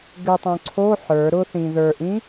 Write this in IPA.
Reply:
ɡ ɨ tˤ õ ǀʰ o ħ ə˞ ɾ ʊ θ ĩ ð ə˞ ʔ ĩ

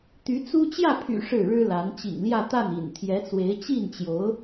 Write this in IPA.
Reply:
t̪ y˧˥ t͡s u˥ t͡ɕ j ä˥˩ pʰ y̰˨˩ ʂ ɻ̩˥˩ ɻ ɻ̩˥ l a˧˥ n t͡ɕ ḭ˨˩ ŋ l j ä˥˧ t̪ a˥˩ n ḭ˨˩ n t̪ʰ j ɛ˧˥ t͡s w e˧˥ ɪ̯ t͡ɕ i˥˩ n t͡ɕ j o˧˥ ʊ̯

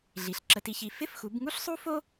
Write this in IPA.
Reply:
ɮ i˩˥ ɬ ǁ ə˧ t i˧ ç i˧ f ɪ˥ f x u˩˥ b ŋ u˥ ɬ sˤ u˥ f o˥

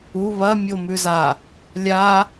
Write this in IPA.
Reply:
u β ɐ mʲ o m ʉ z a | lʲ a

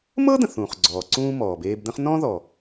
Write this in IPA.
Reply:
m ɤ˥ d̪ ə̃˩ θ ũː˩ χ ɡ͡ǀ ɔː˩ ǀ ũː˧ m ɔː˩ b eː˧ b d̪ ə̃˥ χ n ɔ̃˥ ð ɔ˩

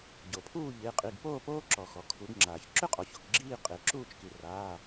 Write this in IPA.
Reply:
ɟ o˩ pʰ uː˥˨ ʎ ɪː˩˧˩ qʼ i˩˧˩ ɡ p oː˥˨ p oː˦ ǁ ɔ˩ x ɔ˩ kʰ u˩˧ ɡ ŋ͡ǁ aː˩ ç ǁ ʏ˦ qʼ ɔ˩ ç o˩ k ɡ͡ǁ iː˥˨ qʼ ɪː˩ ǁ uː˥˨ t͡ʃ k i˩ r aː˩˧˩

